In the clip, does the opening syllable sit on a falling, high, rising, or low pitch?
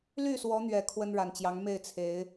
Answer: falling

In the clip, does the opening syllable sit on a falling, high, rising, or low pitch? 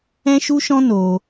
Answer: high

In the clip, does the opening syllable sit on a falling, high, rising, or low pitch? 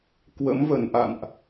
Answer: rising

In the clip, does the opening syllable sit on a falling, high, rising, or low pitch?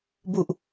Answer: low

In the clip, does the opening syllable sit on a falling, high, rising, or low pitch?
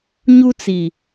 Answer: high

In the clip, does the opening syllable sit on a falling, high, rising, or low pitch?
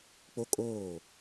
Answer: high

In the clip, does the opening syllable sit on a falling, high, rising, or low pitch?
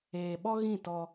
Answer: low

